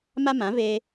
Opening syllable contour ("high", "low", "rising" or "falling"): high